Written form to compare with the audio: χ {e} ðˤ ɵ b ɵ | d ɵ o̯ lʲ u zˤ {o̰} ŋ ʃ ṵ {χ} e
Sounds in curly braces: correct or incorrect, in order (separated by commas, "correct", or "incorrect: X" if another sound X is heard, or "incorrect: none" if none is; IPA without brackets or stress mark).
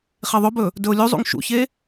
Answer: correct, incorrect: ṵ, incorrect: ç